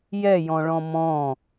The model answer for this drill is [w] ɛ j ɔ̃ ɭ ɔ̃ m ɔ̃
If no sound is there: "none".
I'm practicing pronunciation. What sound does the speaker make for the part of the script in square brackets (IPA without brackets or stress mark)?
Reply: j